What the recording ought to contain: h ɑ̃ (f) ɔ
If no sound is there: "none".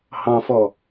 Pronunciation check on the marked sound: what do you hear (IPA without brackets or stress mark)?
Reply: f